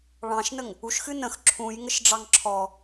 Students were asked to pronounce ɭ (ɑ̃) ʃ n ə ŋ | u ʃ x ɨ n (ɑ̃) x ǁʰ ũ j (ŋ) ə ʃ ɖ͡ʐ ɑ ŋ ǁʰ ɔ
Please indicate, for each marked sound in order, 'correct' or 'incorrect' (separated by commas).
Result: correct, incorrect, correct